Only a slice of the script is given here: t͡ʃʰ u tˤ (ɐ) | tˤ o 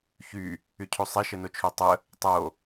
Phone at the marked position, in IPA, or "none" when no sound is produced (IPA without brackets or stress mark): ə